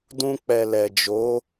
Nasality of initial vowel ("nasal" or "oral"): nasal